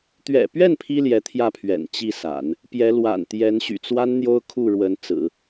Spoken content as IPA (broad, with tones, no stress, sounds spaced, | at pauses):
t̪ ɥ ɛ̰˨˩ p ɥ ɛ˥˩ n pʰ i˥ l j ɛ˧˥ t̪ʰ j ä˥˩ pʰ ɥ ɛ̰˨˩ n t͡ɕ i˥˩ s a̰˨˩˦ n | p j ɛ˧˥ l w a̰˨˩ n t̪ j ɛ˧˥ n ɕ y̰˨˩ t͡s w a˥ n n̪ j o˥ ʊ̯ kʰ u˥˩ ɻ w ə˧˥ n t͡s ɹ̩˨˩˦